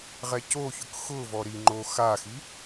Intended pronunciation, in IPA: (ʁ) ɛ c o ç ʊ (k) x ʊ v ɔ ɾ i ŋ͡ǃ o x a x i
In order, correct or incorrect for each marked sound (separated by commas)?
correct, correct